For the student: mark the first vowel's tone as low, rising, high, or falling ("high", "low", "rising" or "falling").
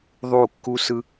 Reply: falling